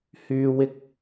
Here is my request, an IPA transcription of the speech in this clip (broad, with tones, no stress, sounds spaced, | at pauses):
h yː˥ w ɪ˥ k̚